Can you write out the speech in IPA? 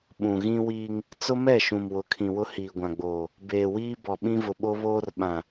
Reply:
ɓ ũ˨ ɣ ĩ˦ w iː˦ ŋ | t͡s ʊ˦ m ɛ˦˨ ʃ ũ˨ m w ʊ˨˦ kʰ ĩ˨ w ʊ˦ h iː˨ ɡʷ ã˨ ɡ͡b oː˨ | b eː˨ w iː˦ b ɔ˨ ɓ ĩ˦ v ʊ˨ ɓ o˦ β oː˦ r ɓ ã˨

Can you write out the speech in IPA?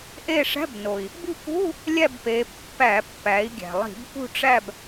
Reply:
ʔ e˦˨ ʂ æ̤˧˥˧ b n o˩ i̯ | b i̤˦˨ k ṳ˧˥˧ | lʲ æ˦˨ b p e˩˧ pː æ˧˩˧ pː æ˩˧ i̯ ɡʲ æ̤˩ lˠ i̤˧˩˧ b p ṳ˦˨ ʈ͡ʂ æ˦˨ b

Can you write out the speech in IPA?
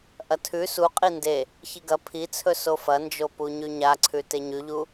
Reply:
ʔ ɐ tʰ ʉ s u qʼ i n d e | ç i ɡ ɐ pʰ i t͡sʰ ɵ s o f ɐ n d͡ʒ o p u ɲ ʉ ɲ a ǀʰ ʉ t e ɲ ʉ ʎ u

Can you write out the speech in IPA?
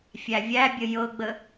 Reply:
fʲ æ vʲ æ bʲ ə j ɤ ɡ͡b ə

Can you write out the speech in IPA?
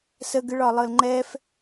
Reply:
s ə ɡ ɨ ɭ ɒ lˠ ɤ l ŋ͡ǃ ɛ f

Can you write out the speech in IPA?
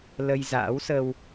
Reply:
l ə˧ j z a̰ː˧˥ w s ə˧ w

